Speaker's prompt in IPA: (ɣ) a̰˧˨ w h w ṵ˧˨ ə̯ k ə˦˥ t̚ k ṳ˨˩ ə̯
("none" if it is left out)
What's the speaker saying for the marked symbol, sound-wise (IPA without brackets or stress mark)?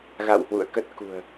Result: ɣ